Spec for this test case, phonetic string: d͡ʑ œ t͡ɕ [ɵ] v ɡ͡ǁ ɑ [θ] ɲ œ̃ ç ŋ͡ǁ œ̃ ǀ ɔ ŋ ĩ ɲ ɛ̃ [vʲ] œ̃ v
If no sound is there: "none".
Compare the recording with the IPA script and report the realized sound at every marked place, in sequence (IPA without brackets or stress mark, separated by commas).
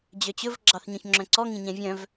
ɵ, θ, vʲ